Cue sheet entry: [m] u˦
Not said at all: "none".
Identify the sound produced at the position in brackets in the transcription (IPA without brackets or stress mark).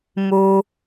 m